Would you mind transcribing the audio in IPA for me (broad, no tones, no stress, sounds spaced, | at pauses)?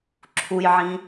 ǁʰ u j ʕ ĩ